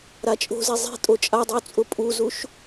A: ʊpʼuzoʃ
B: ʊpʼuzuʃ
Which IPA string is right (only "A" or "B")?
B